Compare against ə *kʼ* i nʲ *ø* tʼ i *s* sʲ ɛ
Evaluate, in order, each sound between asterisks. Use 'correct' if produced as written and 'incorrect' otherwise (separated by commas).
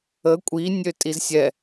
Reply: incorrect, correct, incorrect